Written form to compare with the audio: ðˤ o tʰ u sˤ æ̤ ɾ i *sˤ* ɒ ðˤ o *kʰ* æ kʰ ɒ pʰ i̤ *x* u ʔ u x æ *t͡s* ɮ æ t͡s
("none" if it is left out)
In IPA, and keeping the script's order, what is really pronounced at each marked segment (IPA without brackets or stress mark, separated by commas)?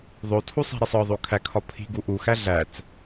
sˤ, kʰ, ɡ, none